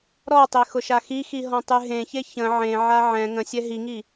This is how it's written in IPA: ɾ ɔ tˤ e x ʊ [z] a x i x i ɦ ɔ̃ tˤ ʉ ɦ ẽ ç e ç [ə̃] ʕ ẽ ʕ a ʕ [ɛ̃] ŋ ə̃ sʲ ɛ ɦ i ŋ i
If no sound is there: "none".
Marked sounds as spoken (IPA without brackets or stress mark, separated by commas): ʃ, ə̃, ɛ̃